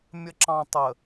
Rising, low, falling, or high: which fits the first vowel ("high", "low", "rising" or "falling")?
low